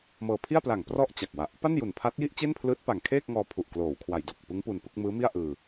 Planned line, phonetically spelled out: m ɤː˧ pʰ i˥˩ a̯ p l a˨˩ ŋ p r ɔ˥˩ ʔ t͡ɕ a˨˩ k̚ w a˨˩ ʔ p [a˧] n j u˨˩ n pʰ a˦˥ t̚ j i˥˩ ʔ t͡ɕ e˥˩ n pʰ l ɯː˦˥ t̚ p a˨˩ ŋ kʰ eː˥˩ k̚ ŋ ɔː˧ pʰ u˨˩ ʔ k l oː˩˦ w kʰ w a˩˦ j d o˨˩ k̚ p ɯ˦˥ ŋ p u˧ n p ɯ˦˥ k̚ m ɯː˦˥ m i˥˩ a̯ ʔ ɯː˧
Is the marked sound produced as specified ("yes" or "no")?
no